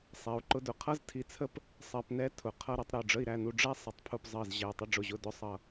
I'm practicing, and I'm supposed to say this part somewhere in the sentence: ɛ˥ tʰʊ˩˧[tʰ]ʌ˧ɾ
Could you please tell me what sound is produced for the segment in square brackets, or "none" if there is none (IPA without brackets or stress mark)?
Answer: qʰ